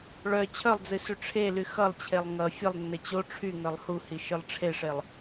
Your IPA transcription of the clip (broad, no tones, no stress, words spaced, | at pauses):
ɭœ t͡ɕʰœlˠd͡zɨ syʈ͡ʂʰely xʌlˠt͡ɕʰelˠ ŋʌ fʲəlˠnːə t͡ɕo ʈ͡ʂʰy ŋœlˠhuhi ʃɨlˠʈ͡ʂʰeʂelˠ